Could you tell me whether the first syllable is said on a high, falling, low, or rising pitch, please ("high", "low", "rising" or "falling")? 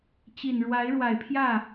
low